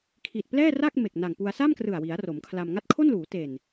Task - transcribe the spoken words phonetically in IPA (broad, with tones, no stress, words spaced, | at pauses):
kʰi˨˩t̚plɛː˥˩ra˥˩k̚ me˨˩k̚na˨˩ŋpu˧a̯ sa˥˩mkrɯ˨˩a̯wi˩˦a̯ ro˩˦mkʰla˧m ŋa˦˥t̚kʰo˥˩nluː˩˦ te˨˩n